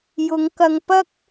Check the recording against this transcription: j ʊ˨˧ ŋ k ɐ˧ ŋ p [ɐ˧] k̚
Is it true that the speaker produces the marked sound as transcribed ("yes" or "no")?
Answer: no